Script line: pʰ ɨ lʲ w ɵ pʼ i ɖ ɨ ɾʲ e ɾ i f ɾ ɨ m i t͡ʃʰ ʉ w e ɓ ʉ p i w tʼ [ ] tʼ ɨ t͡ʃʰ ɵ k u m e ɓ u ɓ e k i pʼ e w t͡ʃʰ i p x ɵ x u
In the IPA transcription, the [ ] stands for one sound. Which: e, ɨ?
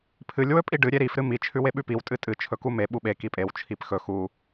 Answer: ɨ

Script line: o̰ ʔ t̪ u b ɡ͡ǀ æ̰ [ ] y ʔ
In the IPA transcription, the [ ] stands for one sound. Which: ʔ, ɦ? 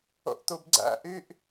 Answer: ʔ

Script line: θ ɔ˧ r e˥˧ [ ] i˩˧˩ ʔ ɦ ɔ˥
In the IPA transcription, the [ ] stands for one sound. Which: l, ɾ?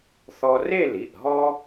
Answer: l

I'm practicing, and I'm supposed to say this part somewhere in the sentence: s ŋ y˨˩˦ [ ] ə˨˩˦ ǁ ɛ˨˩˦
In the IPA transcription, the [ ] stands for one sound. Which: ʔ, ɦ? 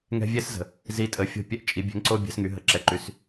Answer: ɦ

